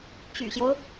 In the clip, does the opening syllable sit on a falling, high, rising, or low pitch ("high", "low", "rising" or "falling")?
low